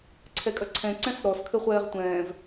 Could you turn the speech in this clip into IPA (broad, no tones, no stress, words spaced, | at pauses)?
ǀʰɛkʼɐǀʰɛ̃ ǀɛ̃sɾɔs kʰɘχʷɛːʁtʷɛ̃ːv